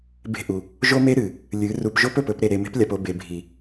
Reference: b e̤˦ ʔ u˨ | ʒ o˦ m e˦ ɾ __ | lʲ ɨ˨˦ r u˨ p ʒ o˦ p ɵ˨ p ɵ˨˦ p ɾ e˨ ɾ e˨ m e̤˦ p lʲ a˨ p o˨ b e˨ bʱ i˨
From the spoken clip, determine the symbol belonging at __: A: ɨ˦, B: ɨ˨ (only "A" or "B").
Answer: B